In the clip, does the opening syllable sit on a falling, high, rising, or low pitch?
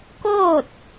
falling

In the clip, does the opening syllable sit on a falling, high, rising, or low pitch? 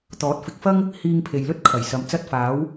rising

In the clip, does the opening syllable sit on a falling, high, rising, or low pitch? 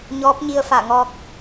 rising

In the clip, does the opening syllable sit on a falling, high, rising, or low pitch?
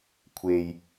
low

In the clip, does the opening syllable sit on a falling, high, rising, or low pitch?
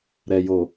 low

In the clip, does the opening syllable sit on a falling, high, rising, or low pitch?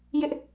high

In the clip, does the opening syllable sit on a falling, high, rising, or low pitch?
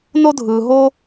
high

